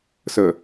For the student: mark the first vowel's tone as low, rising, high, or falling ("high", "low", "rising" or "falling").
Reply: low